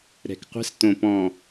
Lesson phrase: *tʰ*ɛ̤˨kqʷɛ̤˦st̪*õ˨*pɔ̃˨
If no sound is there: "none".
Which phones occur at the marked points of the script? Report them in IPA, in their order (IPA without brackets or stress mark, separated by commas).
ɾ, õ˨